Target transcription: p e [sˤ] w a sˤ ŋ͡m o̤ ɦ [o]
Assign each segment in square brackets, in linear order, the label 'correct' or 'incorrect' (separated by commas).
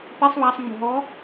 correct, incorrect